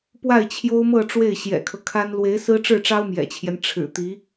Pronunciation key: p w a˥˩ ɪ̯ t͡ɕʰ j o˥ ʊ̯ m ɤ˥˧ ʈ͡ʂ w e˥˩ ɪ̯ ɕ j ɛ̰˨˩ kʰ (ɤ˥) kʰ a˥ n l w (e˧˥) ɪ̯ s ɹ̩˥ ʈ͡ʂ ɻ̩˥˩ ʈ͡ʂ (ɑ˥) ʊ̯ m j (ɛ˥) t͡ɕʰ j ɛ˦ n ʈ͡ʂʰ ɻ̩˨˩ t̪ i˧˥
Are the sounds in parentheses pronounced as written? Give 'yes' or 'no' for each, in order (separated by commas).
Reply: no, yes, yes, no